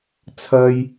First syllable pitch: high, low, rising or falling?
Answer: high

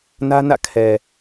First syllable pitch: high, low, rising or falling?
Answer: high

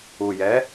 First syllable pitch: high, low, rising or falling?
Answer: low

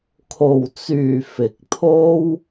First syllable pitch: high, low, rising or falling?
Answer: low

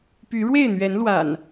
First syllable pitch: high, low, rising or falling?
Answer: rising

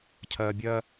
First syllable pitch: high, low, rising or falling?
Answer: low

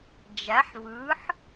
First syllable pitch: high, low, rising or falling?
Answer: rising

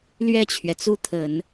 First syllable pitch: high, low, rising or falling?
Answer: falling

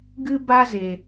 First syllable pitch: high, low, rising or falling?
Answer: high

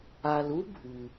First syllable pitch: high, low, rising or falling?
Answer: low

